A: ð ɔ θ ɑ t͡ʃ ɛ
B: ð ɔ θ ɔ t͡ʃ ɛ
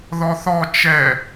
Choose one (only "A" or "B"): B